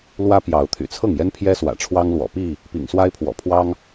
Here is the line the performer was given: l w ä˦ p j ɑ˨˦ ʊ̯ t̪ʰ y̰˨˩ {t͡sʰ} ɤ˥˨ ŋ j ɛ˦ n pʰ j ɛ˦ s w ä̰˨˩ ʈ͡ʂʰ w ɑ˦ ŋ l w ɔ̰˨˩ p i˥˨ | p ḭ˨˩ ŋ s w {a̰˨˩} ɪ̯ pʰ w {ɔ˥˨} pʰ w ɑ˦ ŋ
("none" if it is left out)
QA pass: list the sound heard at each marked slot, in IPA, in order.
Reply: t͡sʰ, a˦, ɔ̰˨˩

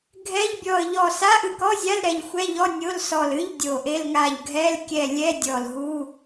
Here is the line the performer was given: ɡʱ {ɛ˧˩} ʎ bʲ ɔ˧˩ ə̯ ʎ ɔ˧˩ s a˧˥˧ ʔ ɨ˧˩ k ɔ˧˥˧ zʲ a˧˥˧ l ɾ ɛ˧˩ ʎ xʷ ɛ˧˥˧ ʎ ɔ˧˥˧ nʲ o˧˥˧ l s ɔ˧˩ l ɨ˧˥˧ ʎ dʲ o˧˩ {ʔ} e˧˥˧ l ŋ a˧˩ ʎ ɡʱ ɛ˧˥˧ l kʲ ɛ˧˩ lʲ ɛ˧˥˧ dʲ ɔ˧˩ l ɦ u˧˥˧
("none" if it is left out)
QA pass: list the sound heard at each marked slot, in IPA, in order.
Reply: ɛ˧˥˧, ʔ

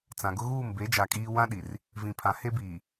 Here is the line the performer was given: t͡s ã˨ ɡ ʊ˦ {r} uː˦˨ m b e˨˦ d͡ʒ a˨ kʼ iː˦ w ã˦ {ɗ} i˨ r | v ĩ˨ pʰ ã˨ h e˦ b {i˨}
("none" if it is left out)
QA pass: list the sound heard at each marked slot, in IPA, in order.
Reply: ɣ, ɗ, iː˨

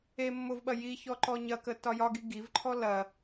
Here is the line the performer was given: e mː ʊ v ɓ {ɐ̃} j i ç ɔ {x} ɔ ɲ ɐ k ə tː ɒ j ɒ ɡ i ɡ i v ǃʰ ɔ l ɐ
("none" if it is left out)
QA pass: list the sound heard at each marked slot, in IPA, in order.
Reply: ɐ, ǃ

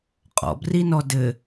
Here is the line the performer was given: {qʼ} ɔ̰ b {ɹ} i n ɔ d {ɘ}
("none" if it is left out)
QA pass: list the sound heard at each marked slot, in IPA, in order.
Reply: qʼ, r, ɘ

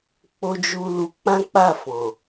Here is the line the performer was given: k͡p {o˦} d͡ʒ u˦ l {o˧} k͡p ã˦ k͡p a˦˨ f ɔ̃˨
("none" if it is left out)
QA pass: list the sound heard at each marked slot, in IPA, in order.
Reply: o˦, u˧

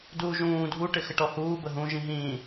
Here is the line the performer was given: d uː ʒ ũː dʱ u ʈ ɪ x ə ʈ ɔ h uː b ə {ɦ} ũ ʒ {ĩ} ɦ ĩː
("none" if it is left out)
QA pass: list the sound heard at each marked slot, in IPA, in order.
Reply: ɦ, ĩ

